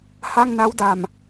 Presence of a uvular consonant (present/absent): absent